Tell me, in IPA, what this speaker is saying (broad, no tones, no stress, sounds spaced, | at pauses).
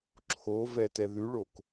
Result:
ǁʰ o v ɛ t ɛ ð ʉ ɭ o k